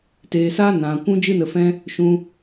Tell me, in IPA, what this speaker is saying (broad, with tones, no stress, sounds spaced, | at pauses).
t eː˨ s aː˦ n ã˨ kʷ ũ˦ d͡ʒ ɨ˦ n ə˧ f ɛ̃˦ | ʃ ũ˧